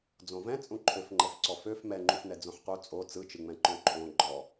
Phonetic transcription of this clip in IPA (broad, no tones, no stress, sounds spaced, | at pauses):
d͡z õ v ɛ̃ t͡sʼ ũ ǃʰ ø f ŋ͡ǃ ɛ f ǀ ɔ f ø f m ɛ ŋ͡ǃ ũ f n ɛ d͡z õ ħ q u t͡sʼ o t͡s ɯ t͡ʃ ɯ ŋ͡m ɛ̃ ǃ õ ǃʰ õ ɡ͡ǃ ɔ